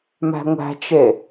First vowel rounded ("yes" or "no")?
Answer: no